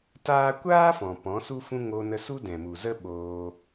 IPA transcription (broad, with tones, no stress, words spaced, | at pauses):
taː˦ kʷaː˦ fɔ̃˨ pɔ̃˨˦su˦fũ˦ ŋo˧nə˧ su˦dɛ̃˨mu˨zə˦ ɓoː˧